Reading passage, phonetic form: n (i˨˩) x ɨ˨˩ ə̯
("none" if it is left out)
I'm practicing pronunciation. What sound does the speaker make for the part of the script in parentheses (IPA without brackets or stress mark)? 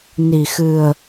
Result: i˨˩